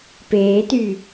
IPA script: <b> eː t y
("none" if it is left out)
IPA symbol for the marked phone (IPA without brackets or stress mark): p